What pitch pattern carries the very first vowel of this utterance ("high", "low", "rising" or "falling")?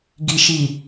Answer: low